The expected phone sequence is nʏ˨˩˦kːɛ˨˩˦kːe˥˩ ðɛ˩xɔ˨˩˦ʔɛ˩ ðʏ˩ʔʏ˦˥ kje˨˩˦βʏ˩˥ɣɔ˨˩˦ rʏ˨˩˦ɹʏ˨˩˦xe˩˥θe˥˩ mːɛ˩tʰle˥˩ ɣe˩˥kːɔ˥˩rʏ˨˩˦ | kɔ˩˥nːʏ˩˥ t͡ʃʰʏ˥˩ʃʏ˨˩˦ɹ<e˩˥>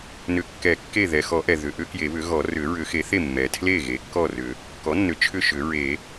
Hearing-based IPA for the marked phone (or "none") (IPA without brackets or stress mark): e˨˩˦